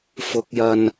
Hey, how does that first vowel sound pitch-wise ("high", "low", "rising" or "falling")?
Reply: rising